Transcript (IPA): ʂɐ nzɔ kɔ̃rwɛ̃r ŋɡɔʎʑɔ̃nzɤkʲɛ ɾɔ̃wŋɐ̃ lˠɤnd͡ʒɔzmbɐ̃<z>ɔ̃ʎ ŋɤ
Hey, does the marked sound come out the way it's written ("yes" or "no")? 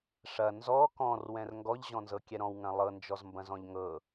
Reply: yes